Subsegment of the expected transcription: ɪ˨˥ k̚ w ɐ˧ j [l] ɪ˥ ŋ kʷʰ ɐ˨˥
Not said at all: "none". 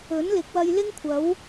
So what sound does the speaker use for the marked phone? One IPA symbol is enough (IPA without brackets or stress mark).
l